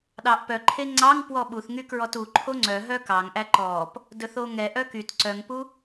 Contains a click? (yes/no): yes